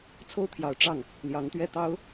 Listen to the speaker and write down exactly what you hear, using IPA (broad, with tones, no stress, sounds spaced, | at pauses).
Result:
t͡sʰ o˥ ʊ̯ t̪ʰ j ɑ˨˩ ʊ̯ ʈ͡ʂ ɑ˥˩ ŋ | l j ɑ˧˥ ŋ t̪ ɥ ɛ˥˩ t̪ ɑ˥ ʊ̯